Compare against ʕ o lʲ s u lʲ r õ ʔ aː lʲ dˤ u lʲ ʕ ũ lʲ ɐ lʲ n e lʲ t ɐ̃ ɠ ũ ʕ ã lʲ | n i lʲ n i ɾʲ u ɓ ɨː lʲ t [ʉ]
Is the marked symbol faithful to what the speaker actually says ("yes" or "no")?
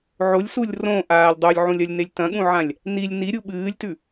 yes